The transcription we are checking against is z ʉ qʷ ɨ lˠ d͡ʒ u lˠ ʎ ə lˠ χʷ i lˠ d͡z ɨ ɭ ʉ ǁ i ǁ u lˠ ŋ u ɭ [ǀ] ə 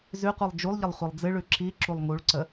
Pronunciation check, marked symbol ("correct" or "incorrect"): correct